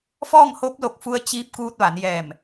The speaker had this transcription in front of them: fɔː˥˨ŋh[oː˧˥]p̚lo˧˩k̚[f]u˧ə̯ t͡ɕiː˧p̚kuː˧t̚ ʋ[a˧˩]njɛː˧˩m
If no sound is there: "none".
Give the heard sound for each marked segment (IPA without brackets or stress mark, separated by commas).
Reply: oː˧˥, f, a˩˧